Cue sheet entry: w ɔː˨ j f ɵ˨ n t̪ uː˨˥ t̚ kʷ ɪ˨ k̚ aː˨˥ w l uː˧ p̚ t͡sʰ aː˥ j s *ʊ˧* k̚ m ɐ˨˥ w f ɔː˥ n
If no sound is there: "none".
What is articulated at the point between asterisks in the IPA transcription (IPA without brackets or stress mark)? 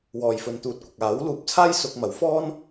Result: ʊ˧